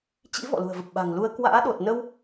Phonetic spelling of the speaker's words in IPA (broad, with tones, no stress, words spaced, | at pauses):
t͡ɕḭ˧˥ vɔ̰˧˨lṳ˨˩ə̯və˨˩p̚ ɓa̤˨˩ŋlu˧ə̯ kwa̰ː˧˥ɗo˨˩t̚ nə˧w